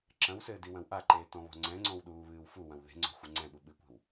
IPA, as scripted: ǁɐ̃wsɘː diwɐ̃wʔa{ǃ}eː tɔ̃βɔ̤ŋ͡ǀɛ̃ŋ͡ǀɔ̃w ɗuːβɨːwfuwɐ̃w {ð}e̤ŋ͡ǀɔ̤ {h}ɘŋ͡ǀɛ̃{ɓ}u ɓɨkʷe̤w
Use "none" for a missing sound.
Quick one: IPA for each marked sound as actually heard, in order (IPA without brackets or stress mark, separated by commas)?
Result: ǃ, ð, xʷ, ɓ